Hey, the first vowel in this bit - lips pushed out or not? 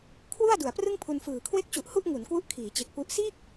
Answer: yes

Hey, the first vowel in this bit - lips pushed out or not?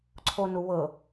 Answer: yes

